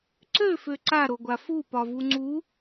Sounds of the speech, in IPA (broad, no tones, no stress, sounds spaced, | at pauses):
ǀ ø f ø ǀ a ɾ o ɡʷ a f u p ɒ v u ŋ͡ǀ u